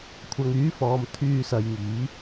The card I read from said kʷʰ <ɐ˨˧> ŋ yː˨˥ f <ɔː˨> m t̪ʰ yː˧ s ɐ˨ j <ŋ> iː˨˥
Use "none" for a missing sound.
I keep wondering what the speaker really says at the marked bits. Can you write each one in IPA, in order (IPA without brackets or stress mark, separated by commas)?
ɐ˨, ɔː˨, ŋ